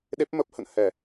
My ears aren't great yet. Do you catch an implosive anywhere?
yes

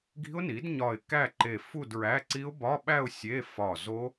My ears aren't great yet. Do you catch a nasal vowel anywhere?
no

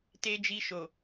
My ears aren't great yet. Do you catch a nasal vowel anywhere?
no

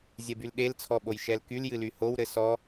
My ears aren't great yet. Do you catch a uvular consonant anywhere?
no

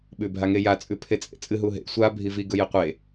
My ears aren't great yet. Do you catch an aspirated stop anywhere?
yes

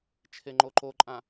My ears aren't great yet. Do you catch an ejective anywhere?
yes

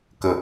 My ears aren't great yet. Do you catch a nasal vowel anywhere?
no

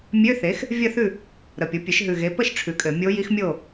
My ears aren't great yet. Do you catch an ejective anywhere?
yes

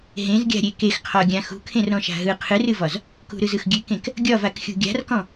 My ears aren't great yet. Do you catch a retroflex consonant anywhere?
no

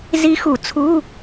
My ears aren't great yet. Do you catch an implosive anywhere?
no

